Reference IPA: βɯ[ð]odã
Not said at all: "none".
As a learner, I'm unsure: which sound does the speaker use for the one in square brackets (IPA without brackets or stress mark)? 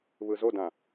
z